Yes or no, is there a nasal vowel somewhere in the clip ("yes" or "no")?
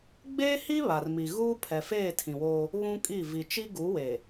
yes